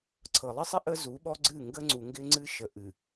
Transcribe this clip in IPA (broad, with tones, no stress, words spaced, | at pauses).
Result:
ǀʰɤ˨lˠɪ˦sˤɪ˦ ʔə˦zu˨˦ɓɔ˦ɡ͡ǀɨ˦˨ ŋɡə˦ ŋ͡ǀu˨ŋɡɪ˦ŋ͡ǀɨ˦ʃə˨ ʔɨ˨